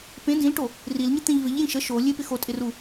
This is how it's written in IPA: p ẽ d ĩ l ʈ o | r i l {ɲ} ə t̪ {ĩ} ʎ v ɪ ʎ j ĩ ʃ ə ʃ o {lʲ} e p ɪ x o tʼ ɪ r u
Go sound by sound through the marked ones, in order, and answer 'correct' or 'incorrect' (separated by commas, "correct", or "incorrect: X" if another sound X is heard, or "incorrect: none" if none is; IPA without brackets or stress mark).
correct, incorrect: ẽ, correct